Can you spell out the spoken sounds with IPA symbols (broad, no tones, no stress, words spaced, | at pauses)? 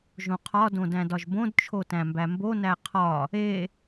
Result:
ʒõqʰɒ dõdæ̃dɒʒbõd t͡ʃʰotæ̃mbæmbo næqʰɒ | e